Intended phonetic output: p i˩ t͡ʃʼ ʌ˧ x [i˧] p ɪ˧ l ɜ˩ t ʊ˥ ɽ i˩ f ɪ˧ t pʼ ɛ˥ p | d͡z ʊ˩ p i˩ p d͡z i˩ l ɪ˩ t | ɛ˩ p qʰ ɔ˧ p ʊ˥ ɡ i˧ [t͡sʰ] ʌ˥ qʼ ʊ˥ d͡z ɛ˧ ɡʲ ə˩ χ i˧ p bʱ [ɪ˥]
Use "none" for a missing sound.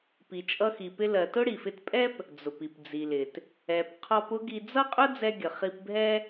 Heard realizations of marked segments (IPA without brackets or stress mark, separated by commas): i˩, d͡z, ɛ˥